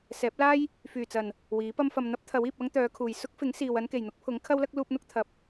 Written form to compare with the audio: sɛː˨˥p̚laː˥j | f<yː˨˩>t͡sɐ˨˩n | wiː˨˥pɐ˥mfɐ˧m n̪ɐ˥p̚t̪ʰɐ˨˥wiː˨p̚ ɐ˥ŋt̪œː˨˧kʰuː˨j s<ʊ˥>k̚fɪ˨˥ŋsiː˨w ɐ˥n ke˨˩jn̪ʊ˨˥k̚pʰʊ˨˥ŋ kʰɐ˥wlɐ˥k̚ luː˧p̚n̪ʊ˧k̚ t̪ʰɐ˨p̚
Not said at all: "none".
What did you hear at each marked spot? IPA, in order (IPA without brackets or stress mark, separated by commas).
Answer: yː˨˩, ʊ˥